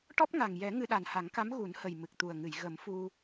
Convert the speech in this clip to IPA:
ʈ ɔ˦˥ p̚ ŋ a˨˩ ŋ j ɛ˨˩˦ ŋ ɨ˧ ɗ a˨˩ n h a˨˩˦ ŋ k a˧˥ m ɣ u˨˩˦ n h ə˨˩ j m ɨ˨˩ k̚ t̪ u˨˩ ə̯ ŋ ɨ˨˩˨ j ɣ ə˨˩˦ m f u˧

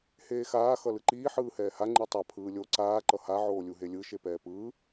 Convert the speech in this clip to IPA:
h eː x aː x ʌ l ɯ ǃ iː ħ ɯː h ɛː h a ŋ͡ǃ ɯ tˤ a pʰ ɯː lʲ o ǀ aː ǃ ʌ h a ʕ oː lʲ u ɦ e lʲ ɯ ʃ e p ɛː p ɯː

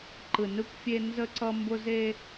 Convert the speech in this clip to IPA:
ǃ ɯ˨ n ɯ˦ kʷ fʲ e˦ n z ə˦ ǀ ʌ˦ m b ʊ˦ z e˦

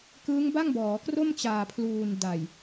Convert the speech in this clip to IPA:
k ɯː˦˥ ŋ b a˥˩ ŋ b ɔː˩˦ k r o˥˩ m t͡ɕ aː˨˩ pʰ l uː˨˩ n d a˨˩ j

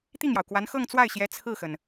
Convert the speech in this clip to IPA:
t̪ i˥˩ ŋ j ɑ˩ ʊ̯ k w a˧˥ n x ɤ˥˧ ŋ t͡s w a˥˩ ɪ̯ ɕ j ɛ˧˥ t͡sʰ ɹ̩˥˩ x ə˩ n

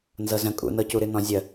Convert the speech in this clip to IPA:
n z ɤ z ə̃ kʼ ṵ n ɤ c u ɾ ɨ n ɔ̃ zʲ ə

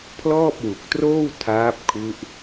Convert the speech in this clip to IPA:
pʰ l ɔː˥˩ p̚ w u˨˩ k̚ t r oː˥˩ w tʰ aː˦˥ p̚ kʰ u˦˥ ʔ

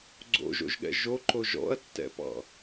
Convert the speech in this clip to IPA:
ɡ͡ǀ o̰ ʒ o̰ ʒ ɠ ɛ̰ ʒ o ǃ o ʒ ɔ̰ ɐ̯ tː ɛ̰ p ɑ̰

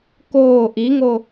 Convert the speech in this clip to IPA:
k oː ʔ i ŋ o

